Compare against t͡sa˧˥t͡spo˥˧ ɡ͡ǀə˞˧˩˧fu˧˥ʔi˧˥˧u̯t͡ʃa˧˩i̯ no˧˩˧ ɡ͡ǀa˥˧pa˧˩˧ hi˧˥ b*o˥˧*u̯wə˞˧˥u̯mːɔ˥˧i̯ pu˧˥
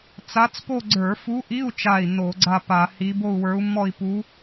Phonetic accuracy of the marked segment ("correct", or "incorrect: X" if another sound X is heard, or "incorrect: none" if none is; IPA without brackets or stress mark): correct